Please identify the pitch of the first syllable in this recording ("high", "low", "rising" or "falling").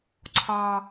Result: low